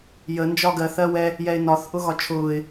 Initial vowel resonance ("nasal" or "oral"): oral